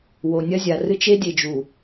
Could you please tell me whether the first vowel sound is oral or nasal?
oral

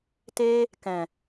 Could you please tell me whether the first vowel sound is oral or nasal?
oral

